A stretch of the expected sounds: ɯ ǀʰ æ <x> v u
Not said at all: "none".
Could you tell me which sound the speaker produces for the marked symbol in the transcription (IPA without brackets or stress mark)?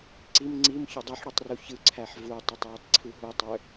ħ